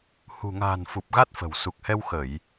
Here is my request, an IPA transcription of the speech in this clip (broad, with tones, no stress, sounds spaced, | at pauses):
h ṳ˨˩ ŋ a̤ː˨˩ n f u˨˩ p̚ ɣ a˦˥ t̚ f ə̤˨˩ w s u˨˩ k̚ h ɛ˧ w x ə˧˩˨ j